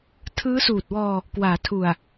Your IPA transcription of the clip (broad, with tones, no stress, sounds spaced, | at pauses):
tʰ ɯː˦˥ s uː˨˩ t̚ w ɔː˧ | k w aː˩˦ tʰ u˨˩ a̯